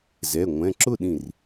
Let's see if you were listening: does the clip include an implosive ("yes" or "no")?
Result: yes